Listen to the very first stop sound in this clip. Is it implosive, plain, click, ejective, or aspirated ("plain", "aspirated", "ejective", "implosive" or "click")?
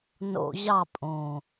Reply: ejective